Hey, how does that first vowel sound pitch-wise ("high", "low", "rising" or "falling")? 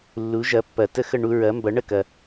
rising